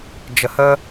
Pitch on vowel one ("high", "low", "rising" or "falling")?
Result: low